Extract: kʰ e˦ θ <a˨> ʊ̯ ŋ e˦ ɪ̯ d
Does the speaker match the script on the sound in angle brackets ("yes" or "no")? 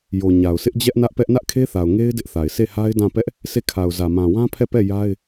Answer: yes